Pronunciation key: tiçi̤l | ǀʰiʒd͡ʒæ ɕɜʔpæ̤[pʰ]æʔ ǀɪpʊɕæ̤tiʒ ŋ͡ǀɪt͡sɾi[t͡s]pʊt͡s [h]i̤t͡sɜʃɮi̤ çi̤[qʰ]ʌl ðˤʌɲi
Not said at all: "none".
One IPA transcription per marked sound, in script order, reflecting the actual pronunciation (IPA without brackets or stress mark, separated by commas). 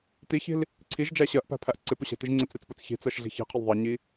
pʰ, t͡s, ç, qʰ